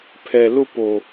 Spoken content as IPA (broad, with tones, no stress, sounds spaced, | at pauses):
pʰ ɛ˨ l ʊ˦ p o˨